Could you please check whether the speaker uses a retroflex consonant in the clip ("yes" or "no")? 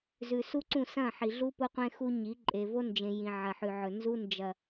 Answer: no